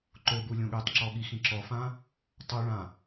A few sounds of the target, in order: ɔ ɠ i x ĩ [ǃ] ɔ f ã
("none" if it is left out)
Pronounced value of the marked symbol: ǁ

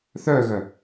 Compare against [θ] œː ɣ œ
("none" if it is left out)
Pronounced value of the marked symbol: θ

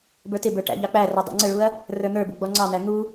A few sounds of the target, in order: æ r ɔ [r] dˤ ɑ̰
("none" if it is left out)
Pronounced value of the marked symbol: none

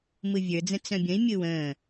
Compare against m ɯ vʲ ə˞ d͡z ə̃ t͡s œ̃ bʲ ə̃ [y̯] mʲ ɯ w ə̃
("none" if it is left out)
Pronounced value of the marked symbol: i̯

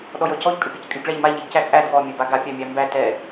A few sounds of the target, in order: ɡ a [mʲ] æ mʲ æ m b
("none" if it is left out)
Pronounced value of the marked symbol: pʲ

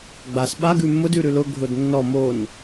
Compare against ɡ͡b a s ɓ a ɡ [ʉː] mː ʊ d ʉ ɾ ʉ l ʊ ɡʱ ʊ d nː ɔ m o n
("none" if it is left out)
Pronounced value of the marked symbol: ʉ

